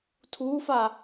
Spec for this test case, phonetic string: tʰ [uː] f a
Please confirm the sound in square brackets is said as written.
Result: yes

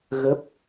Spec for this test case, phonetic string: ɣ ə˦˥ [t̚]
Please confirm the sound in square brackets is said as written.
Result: no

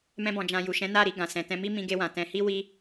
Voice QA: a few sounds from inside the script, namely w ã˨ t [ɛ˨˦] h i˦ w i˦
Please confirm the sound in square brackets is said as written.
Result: no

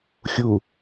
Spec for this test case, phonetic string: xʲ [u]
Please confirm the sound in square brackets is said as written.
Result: yes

